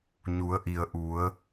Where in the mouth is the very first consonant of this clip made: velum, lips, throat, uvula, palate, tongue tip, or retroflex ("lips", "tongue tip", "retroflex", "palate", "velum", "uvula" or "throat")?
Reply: palate